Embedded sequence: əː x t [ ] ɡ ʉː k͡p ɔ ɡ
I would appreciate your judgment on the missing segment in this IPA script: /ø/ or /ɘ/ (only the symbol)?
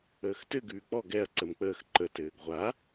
ɘ